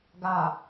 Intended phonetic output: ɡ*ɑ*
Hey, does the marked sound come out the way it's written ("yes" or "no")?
no